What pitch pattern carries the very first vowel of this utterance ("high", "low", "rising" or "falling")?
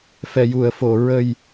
low